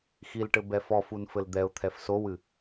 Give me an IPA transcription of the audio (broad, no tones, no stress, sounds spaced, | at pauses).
x i l ʈ ɘ b ɛ f ɔ f u n f ɘ l d̪ ɛ ʊ̯ t̪ʰ ɛ f s o w ɨ